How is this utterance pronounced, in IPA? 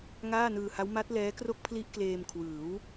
ŋ aː˥˩ n ɯː˧ h a˦˥ w m a˦˥ t̚ l ɛː˦˥ k r o˥˩ k̚ pʰ l i˦˥ ʔ k l eː˧ m kʰ w ɯː˩˦ w

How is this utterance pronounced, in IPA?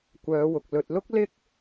kʷ œː˨˧ w ʊ˨ k̚ l ɵ˨ t̚ l ʊ˥ k̚ l ɪ˥ k̚

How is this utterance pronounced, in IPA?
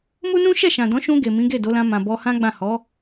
m u˦ n ũ˦ ʃ ɛ˦˨ ʃ ã˨ d ɔ̃˨˦ ʃ ũ˧ ɡ e˨ m ĩ˨˦ ɡ e˦˨ d o˨˦ l ã˧ m ã˨ b ɔ˧ h ã˦ ɡ͡b ã˦˨ h ɔ˨˦

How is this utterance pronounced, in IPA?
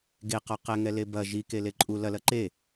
ɡ e q ɔ q ɛ ŋ ɛ l e b ɐ ʒ i k e l e ǃʼ u l ɐ l ɐ ǃ e

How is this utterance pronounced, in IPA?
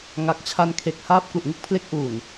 ŋ a˨˩ k̚ t͡ɕʰ a˧ n kʰ e˨˩ k̚ h aː˥˩ p̚ k u˨˩ ʔ ŋ ɯ˥˩ k̚ pʰ l e˦˥ k̚ ʔ uː˨˩ n

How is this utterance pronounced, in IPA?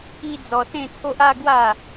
i˦ d͡z ɔ˧ s ẽ˥˧ t͡sʰ o˦ ʔ a˥˧ ɡ w a˥˧

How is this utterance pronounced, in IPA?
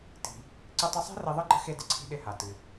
t i̤˩ | ǀ ɨ˧ tˤ ɨ˧ sˤ e̤˥ r i˧ ðˤ ɨ˥ ɡ͡ǃ ə̤˥ x e˧ d ɪ˩ ǀʰ i̤˧ ɗ ɪ˧ h a˩ t ɨ˩

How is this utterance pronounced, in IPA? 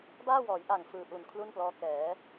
b aː˥˩ w ɔː˩˦ j ʔ a˨˩ ŋ f ɯː˧ ʔ u˨˩ n kʰ l u˥˩ n p l ɔː˦˥ k ɛː˩˦

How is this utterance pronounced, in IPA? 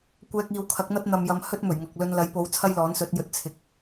kʷ ɛː˧ k̚ iː˨ w kʰ ɐ˨˥ k̚ n̪ ɐ˥ t̚ n̪ ɐ˨ m j ɐ˧ m h ɵ˥ t̚ m ɵ˨˩ ɥ ŋ ɐ˨ k̚ l ɵ˧ n l ɐ˨˥ j p o˨˥ w t͡sʰ ɐ˥ j l ɔː˨˥ n s ɵ˨˥ t̚ j ɵ˨˥ t̚ t͡sʰ ɪ˨ k̚

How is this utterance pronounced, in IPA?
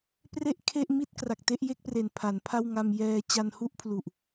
p r e˥˩ ʔ kʰ e˥˩ ʔ m i˥˩ t̚ k r a˨˩ k̚ t e˥˩ ʔ j e˥˩ k̚ p r e˨˩ n pʰ a˩˦ n pʰ a˥˩ w ŋ a˧ m j ɛː˧ t͡ɕ a˧ n h u˥˩ ʔ pʰ l u˨˩ ʔ

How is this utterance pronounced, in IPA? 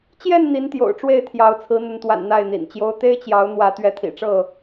t͡ɕ j ɛ˥˨ n n̪ i˨˦ n t̪ j o̰˨˩ ʊ̯ ʈ͡ʂ w e˥˨ ɪ̯ t̪ʰ j ɑ˨˦ ʊ̯ t͡sʰ ɹ̩˨˦ n̪ ə˨˦ n t̪ w a̰˨˩ n n̪ a˥˨ ɪ̯ n̪ ḭ˨˩ n t͡ɕ j o˦ ʊ̯ t̪ e˦ ɪ̯ t͡ɕ j ɑ˨˦ ʊ̯ n̪ w ä˨˦ t̪ ɥ ɛ˨˦ t̪ʰ ḭ˨˩ ʈ͡ʂ ɤ˥˨

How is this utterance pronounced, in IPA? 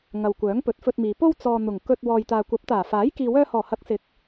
ŋ ɐ˨ w kʷ œː˨˥ ŋ p ɵ˨˥ t̚ f ɵ˧ t̚ m iː˨ p o˥ w t͡s ɔː˨ n̪ ʊ˨˩ ŋ k ɵ˧ t̚ w ɔː˨ j t̪ aː˨ kʷ ɐ˨˥ p̚ t̪ aː˨˩ f aː˨˥ j k iː˨ w œː˧ h ɔː˨˩ h ɐ˨˥ k̚ s ɪ˨˥ k̚

